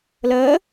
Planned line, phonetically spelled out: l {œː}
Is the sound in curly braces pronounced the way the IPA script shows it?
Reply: no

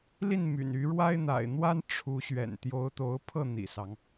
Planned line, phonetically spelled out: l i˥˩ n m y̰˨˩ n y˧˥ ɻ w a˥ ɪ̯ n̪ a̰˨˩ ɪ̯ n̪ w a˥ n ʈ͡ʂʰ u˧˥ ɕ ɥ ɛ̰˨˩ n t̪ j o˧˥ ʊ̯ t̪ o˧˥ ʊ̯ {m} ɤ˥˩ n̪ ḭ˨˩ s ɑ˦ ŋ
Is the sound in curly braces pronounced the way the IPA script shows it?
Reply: no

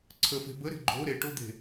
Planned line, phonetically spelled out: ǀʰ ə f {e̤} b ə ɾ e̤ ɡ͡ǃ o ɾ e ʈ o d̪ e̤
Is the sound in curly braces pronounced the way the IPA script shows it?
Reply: yes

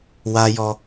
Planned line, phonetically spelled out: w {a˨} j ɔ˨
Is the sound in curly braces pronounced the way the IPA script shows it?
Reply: yes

